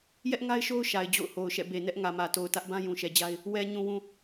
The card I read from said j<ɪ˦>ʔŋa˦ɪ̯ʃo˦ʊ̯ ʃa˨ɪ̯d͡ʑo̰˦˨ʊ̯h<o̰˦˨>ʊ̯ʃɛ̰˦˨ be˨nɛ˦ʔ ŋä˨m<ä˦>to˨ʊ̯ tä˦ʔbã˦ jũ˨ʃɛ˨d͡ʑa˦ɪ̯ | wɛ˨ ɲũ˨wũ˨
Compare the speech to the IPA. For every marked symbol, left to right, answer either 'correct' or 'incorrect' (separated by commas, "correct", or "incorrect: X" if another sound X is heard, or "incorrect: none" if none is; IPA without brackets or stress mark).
incorrect: ɛ˦, incorrect: o˨, incorrect: ä˨